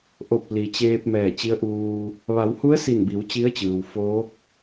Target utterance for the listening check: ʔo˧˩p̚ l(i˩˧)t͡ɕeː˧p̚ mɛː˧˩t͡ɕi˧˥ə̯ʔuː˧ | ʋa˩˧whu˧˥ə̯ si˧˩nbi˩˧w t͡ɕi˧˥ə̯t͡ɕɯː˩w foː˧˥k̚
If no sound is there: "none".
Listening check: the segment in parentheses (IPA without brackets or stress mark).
i˩